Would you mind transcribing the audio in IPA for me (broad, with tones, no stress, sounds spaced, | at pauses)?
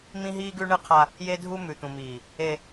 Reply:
m ĩ˦ ɦ iː˦ ɡ ʉ˦ ɳ ɨ˦ qʰ a˦ | j e˦ dʱ u˦ m ʉ˨ t̪ ũ˨ m iː˨ | e˦